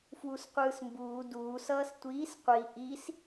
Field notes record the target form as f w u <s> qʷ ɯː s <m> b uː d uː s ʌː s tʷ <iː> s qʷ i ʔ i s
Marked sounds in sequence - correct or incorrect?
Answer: correct, correct, correct

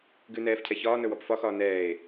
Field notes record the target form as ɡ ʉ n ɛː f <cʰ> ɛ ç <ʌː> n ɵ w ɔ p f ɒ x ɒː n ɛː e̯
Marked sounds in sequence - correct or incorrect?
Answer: correct, incorrect: ɒː

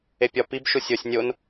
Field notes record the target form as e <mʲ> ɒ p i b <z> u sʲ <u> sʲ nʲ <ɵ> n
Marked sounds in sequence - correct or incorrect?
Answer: incorrect: pʲ, incorrect: ʃ, incorrect: o, incorrect: o

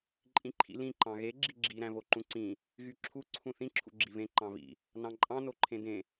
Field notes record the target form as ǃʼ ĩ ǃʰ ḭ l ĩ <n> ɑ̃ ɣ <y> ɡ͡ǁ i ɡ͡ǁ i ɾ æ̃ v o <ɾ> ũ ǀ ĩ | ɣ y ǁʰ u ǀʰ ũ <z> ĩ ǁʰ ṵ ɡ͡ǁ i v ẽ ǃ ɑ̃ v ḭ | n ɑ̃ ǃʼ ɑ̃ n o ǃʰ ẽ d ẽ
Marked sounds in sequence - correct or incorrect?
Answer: incorrect: ǃ, incorrect: e, incorrect: ǃ, incorrect: θ

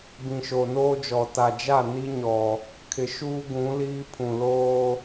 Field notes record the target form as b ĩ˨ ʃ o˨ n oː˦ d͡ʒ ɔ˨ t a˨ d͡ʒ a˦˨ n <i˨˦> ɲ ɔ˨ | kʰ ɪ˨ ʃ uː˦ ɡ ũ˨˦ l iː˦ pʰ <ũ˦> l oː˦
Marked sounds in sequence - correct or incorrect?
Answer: incorrect: i˦, incorrect: ũ˨

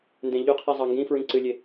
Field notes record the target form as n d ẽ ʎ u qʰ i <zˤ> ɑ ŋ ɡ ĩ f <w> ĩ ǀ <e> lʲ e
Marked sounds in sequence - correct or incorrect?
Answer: correct, incorrect: ɹ, incorrect: ɨ

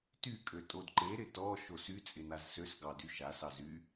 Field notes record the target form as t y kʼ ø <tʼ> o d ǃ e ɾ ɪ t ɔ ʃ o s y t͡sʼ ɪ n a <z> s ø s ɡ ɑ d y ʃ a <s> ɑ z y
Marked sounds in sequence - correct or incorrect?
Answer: correct, correct, correct

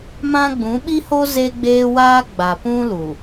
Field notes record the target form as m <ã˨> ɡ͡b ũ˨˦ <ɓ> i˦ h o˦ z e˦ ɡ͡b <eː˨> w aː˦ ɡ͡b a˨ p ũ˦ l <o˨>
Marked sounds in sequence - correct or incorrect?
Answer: incorrect: ã˦, correct, incorrect: eː˦, incorrect: u˨

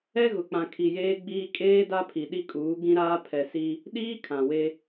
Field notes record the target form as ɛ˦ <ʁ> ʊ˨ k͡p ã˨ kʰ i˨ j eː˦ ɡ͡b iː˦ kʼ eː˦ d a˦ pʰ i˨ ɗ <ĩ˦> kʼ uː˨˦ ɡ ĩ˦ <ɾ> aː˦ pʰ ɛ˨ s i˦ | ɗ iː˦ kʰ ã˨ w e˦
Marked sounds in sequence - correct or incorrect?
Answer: incorrect: ɣ, incorrect: i˦, correct

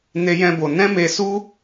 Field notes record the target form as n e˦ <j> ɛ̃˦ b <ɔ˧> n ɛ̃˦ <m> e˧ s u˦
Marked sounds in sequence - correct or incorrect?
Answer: correct, incorrect: o˧, correct

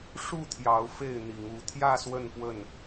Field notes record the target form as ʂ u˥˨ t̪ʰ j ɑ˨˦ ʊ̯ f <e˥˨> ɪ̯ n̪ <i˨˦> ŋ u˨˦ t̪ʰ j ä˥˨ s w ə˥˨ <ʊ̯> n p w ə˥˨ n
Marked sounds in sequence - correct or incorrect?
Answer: correct, correct, incorrect: none

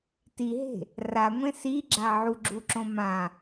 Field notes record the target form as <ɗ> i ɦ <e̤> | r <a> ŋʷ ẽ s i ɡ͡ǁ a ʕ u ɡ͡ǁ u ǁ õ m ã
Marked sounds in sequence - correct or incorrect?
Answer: incorrect: t, correct, correct

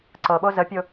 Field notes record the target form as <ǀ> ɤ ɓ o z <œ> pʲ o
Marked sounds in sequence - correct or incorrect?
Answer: correct, incorrect: ə

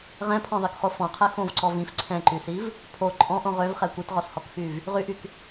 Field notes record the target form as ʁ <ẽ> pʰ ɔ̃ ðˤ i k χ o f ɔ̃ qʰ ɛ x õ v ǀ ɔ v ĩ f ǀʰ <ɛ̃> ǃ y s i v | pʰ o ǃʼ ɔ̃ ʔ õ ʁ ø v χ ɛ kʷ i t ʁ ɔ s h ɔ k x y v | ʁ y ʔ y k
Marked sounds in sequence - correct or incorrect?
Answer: incorrect: ɛ̃, correct

